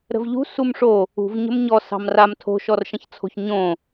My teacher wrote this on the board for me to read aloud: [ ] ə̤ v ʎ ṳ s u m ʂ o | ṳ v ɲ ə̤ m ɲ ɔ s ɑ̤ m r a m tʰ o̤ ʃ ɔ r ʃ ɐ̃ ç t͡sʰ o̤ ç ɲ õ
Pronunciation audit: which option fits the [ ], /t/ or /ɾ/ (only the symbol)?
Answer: ɾ